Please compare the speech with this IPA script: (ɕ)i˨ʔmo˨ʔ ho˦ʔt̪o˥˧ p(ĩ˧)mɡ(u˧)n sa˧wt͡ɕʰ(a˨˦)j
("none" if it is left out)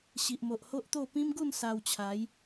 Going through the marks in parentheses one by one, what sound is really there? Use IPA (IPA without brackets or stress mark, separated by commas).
ɕ, ĩ˦, u˥˧, a˨˦